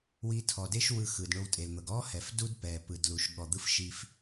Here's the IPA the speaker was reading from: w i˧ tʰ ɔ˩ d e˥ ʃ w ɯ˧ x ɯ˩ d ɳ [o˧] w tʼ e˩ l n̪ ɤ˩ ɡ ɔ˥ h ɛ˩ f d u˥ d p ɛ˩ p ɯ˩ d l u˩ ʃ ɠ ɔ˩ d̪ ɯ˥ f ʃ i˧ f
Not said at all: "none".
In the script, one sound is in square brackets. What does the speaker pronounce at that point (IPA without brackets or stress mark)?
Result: o˧